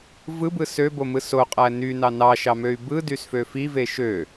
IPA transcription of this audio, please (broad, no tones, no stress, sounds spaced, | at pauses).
v ɯ b ɯ s ø b o m ɯ s o qʼ æ n y n ɑ n ɑ ʃ ɑ m ø y̯ b ɯ d y s f ø f i v e ʃ ø